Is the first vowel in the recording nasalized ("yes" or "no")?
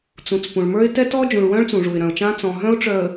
yes